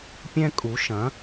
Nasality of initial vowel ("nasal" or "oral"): nasal